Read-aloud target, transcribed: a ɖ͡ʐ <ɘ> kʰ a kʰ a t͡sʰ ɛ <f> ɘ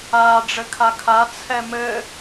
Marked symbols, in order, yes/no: yes, no

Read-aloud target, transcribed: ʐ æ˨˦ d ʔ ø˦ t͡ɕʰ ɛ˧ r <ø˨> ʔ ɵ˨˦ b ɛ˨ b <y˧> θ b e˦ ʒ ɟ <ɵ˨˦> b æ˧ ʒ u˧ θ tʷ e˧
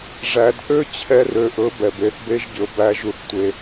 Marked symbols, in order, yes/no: yes, no, yes

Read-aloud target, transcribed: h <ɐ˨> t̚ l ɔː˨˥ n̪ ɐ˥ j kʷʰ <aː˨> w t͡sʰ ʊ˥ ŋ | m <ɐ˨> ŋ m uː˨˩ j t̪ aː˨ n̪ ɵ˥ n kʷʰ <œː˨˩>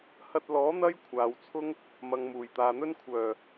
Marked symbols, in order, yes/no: no, yes, yes, yes

